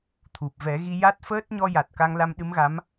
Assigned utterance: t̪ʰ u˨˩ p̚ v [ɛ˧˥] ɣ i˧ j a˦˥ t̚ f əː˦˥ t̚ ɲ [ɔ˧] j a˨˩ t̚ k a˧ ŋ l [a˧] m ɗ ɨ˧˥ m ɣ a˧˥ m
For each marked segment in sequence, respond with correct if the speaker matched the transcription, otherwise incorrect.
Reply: incorrect: ɛ˨˩˦, correct, correct

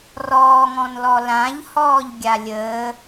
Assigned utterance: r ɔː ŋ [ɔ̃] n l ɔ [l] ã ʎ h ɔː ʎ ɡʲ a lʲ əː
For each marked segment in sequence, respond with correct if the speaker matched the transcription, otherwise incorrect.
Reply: correct, correct

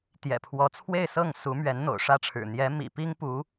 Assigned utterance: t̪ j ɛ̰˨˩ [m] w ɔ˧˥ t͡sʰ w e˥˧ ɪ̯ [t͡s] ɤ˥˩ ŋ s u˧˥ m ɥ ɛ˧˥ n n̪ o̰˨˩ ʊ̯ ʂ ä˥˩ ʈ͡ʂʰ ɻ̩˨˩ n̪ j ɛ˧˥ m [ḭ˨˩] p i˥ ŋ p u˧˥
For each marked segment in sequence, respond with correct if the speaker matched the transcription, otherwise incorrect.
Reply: incorrect: pʰ, incorrect: s, correct

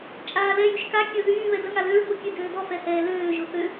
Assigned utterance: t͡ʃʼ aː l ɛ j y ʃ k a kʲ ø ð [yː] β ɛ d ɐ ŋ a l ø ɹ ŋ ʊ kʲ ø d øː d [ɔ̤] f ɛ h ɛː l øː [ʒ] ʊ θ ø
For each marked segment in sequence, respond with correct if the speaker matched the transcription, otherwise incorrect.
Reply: correct, incorrect: ɔ, correct

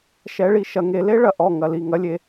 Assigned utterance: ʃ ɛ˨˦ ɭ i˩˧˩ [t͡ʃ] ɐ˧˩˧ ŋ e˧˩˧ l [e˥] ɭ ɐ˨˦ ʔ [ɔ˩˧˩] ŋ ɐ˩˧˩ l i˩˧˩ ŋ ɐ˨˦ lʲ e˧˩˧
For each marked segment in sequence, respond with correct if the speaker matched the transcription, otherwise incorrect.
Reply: incorrect: ʃ, correct, correct

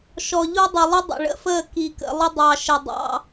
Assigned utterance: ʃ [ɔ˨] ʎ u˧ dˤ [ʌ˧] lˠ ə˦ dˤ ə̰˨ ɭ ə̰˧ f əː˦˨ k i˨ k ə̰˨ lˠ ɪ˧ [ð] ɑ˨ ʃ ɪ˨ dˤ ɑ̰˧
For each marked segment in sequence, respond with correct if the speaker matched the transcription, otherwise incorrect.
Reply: correct, incorrect: ʌ˨, incorrect: dˤ

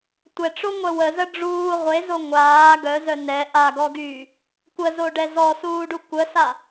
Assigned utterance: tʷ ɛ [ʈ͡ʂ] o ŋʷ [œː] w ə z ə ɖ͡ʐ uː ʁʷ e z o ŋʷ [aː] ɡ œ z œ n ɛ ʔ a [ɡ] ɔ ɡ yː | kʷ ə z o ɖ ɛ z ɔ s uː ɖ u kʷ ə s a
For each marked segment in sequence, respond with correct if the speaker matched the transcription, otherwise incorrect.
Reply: correct, incorrect: œ, correct, correct

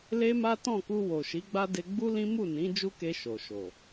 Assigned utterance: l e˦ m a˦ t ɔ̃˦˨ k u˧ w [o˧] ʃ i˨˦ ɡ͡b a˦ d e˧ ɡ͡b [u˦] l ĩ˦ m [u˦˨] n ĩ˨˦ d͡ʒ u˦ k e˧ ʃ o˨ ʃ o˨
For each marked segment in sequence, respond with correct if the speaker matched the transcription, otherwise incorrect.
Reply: incorrect: o˨, correct, correct

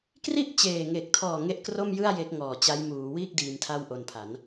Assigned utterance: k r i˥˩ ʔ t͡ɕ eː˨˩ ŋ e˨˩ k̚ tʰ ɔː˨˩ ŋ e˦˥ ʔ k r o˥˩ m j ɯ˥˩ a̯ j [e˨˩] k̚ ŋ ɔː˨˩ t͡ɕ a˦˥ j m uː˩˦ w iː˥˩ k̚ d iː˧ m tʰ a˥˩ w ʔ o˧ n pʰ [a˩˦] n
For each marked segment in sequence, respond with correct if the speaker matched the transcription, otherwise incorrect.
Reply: incorrect: e˦˥, correct

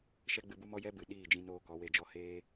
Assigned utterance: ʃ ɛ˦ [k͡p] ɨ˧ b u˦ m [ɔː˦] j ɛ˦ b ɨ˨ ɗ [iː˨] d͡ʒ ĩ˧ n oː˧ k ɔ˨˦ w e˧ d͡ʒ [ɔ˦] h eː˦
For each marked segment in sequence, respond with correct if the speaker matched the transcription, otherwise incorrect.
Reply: incorrect: ɡ͡b, incorrect: ɔ˦, incorrect: iː˦˨, correct

